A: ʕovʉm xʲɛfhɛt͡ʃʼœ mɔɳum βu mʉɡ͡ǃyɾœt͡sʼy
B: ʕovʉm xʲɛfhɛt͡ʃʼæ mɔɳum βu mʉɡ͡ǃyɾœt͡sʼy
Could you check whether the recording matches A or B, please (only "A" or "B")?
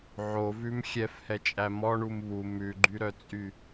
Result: B